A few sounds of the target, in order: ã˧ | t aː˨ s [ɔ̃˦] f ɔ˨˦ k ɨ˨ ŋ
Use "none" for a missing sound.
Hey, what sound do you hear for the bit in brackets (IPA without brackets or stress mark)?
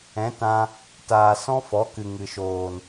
ɔ̃˦